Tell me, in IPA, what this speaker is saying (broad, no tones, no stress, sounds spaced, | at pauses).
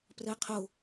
p r ɜ qʰ o